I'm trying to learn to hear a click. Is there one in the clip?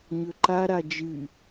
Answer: yes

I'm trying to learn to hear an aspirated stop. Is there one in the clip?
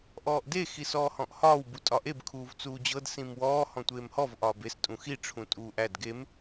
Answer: yes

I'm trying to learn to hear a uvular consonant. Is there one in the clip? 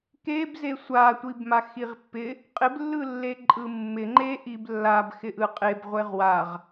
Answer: yes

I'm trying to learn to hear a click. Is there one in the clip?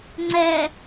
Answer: yes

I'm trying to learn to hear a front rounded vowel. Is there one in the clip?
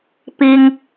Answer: no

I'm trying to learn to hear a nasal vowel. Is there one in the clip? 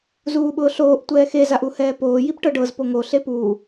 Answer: no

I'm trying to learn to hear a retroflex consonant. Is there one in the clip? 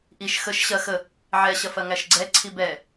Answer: no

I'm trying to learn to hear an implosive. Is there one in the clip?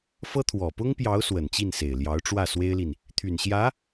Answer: no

